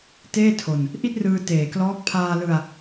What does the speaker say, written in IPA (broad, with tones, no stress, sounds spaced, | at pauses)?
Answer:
t eː˥˩ tʰ o˧ n | ʔ i˥˩ t̚ r ɯː˧ t eː˨˩ k l ɔː˦˥ k̚ pʰ aː˧ l ɯ˧ a̯